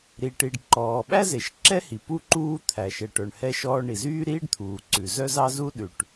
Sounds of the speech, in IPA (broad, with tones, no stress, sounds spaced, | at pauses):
ɾ i˩ ʈ i˩ ɖ ǃ ɔː˩ ɓ æ˥ z e˩ ʃ ǁ ɛ˥ h i˩ p u˥ ǃ uː˥ t̪ʰ æ˩ ʃ ɛ˩ ʈ œ˩ ɳ h ɛ˥ ʃ ɔː˥ ɳ i˩ z yː˥ ɾ iː˥ ɖ t̪ʰ uː˩ ǀ ʉ˩ z œ˥ z ɑ˥ z u˥ ɗ ʉ˩ ʈ